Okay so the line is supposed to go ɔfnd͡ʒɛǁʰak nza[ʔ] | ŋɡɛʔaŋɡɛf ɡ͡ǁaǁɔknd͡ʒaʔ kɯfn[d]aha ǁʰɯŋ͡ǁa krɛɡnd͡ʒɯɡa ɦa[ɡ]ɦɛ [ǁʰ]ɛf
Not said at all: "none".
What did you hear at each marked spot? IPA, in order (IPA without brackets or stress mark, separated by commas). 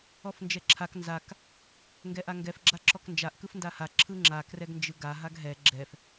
k, d, ɡ, ɡ͡ǁ